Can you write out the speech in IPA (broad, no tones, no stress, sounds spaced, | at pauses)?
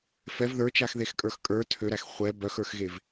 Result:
f ɛ v ð ə˞ t͡ʃ a x ð e x kʼ ə˞ x kʼ ə˞ tʰ ø ɾ æ x χʷ ɛ b œ x ə˞ x ɣ e v